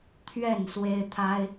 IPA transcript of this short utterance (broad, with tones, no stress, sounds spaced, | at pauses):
t̪ʰ ɥ ɛ˥˨ n s w e˦ ɪ̯ t̪ʰ a˦ ɪ̯